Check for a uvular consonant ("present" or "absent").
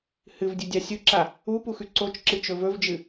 absent